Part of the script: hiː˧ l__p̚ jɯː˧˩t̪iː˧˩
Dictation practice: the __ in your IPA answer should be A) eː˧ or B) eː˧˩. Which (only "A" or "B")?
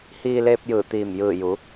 A